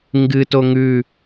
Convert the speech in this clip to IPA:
ŋ ɡ ɨ t o ŋ ʉ

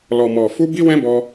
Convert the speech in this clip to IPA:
l ɔ˨ m ɔ˨ f u˧ b i˦ w ɛ̃˦ b ɔ˦

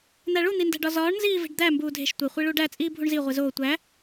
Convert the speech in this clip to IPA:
n̪ æ ɭ u n̪ i n d æ̤ ɖ ɒ z ɒː ɳ n z iː v e̤ ɖ d̪ æ m b uː dʱ e̤ ʃ tʷ e χʷ i ɭ uː ɖ æ t͡sʼ iː bʱ u ɳ z i ʁʷ i z oː tʷ æ

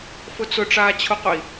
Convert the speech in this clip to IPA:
f ʊ t͡s ʊ ʈ͡ʂ aː t͡ɕʰ ʊ q ʊ i̯

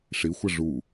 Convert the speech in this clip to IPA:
ʂ i xʷ ɛ ʐ u

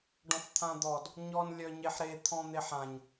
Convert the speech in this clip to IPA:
ɖ ɔ̃ f t̪ʰ ã d̪ ɔ d | ɲ ɔ n lʲ œ ɲ e ħ ɾ e t̪ʰ ɔ̃ n̪ e ħ ã ɲ

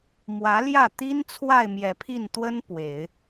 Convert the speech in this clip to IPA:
m w ä˧˥ l j ä˥˩ t̪ i˥ n t͡sʰ w a˥˩ ɪ̯ m j ɛ˨˩ pʰ i˥˩ n t̪ w ə˥ n p w e˨˩˦ ɪ̯

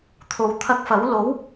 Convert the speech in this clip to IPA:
t̪ʰ o˨ w t̪ʰ ɐ˧ k̚ f ɐ˨˥ w l o˨˥ w

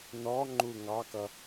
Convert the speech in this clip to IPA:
n ɔ ŋ͡ǃ u ŋ ɑ k ʌ

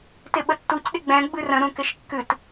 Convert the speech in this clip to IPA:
t ɪ ɓ ə tː u c ɗ ɪ ɡ͡b ɛ̃ ɡ͡b ɨ r ə̃ ɾ ũ k ɪ ʃ kː ɨ t

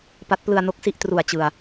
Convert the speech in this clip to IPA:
p a˦˥ t̚ p l ɯ˧ a̯ n o˦˥ k̚ s i˥˩ ʔ t r u˨˩ a̯ t͡ɕ ɯ˨˩ a̯

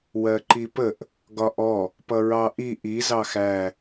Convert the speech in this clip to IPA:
w ɜ ǃ i p ə ʔ | ɡ ɒ ʔ ɔ | p ʌ ɹ ɑ ʔ i ʔ i z ɑ x æ

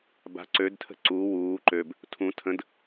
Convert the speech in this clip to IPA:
b a̤ ǀ ø d tʰ ə̤ ǀ u w uː ǃ ø b | tʰ ũ tʰ ə̃ d

